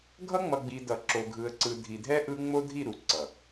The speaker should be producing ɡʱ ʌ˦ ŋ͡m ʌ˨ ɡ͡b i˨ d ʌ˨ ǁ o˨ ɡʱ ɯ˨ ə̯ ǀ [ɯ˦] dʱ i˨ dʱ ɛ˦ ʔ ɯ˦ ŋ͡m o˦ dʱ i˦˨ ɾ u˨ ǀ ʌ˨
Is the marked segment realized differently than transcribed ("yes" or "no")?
yes